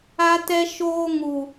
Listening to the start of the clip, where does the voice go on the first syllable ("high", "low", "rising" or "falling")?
high